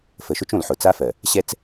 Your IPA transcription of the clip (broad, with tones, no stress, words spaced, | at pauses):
fə˨ʃʊ˦t͡ʃõ˨l ħʊ˨t͡sa˦fɜ˨ | ɕɛ˦t͡s